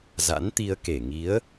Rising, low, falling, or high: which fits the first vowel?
rising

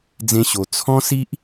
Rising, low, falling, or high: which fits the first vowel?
high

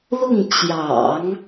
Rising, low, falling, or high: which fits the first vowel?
falling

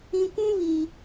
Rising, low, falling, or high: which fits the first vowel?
low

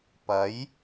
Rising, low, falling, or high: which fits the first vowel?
rising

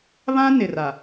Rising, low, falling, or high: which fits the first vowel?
high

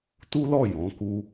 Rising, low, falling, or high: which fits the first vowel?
high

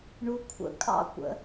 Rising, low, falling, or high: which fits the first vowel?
low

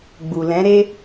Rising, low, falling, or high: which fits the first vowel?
low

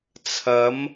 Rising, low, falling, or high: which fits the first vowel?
rising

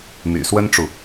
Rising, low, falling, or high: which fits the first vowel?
low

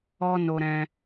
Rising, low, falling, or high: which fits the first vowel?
high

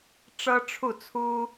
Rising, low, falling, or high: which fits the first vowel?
high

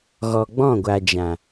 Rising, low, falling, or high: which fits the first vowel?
low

